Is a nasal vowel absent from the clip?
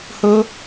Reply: yes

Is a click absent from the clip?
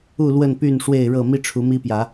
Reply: yes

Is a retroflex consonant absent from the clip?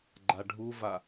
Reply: no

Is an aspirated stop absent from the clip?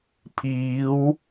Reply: no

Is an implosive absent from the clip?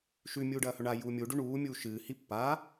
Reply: yes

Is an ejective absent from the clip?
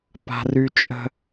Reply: no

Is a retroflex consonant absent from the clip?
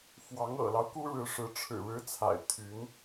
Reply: no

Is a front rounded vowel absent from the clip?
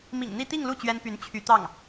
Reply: no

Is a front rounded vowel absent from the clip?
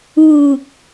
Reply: yes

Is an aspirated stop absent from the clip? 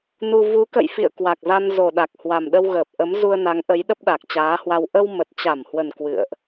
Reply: yes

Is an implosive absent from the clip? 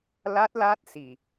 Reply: yes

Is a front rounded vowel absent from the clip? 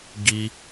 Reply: yes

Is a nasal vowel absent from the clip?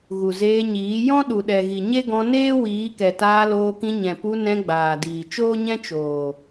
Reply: no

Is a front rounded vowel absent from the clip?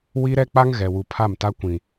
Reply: yes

